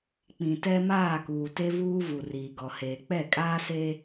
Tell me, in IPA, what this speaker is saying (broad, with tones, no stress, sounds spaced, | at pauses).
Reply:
k͡p ĩ˨ t ɛ˦ m aː˦˨ k uː˨ t e˦ v uː˦ v u˨ r iː˨ ɡ ɔ˨ h eː˨ k͡p ɛ˦˨ kʼ aː˦ s e˦